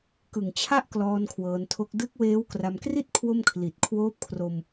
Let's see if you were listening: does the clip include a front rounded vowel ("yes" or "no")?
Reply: no